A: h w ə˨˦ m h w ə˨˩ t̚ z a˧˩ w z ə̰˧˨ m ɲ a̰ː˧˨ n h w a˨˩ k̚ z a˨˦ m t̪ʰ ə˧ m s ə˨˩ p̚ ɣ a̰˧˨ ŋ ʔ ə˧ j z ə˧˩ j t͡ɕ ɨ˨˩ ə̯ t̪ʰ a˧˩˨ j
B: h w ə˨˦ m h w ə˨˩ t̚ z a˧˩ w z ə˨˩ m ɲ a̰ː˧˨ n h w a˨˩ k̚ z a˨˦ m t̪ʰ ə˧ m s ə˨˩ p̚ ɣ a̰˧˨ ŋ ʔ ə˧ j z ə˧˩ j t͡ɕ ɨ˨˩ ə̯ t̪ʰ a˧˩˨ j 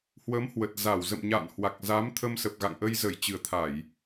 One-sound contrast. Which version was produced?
A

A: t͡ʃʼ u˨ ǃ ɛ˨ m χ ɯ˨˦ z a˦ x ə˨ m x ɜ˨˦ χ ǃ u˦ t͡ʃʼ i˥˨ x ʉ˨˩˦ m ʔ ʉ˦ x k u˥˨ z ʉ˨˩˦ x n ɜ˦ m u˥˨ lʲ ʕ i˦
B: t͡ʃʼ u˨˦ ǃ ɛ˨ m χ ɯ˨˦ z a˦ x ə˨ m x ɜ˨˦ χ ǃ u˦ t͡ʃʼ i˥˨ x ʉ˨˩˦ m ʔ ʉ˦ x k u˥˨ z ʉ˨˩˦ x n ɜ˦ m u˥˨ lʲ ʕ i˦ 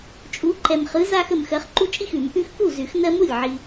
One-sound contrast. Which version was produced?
B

